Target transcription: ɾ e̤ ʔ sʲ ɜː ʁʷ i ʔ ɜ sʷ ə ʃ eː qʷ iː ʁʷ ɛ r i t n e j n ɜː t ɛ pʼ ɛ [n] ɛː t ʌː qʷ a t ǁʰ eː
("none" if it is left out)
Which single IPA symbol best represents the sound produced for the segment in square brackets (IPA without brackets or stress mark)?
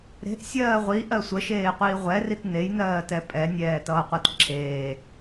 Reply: nʲ